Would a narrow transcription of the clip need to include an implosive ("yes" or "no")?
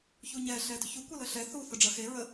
no